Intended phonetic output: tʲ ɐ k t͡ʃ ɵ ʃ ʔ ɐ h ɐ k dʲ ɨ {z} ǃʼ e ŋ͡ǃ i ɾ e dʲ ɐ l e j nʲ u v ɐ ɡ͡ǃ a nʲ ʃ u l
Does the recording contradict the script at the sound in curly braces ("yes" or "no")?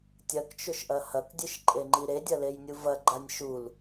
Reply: yes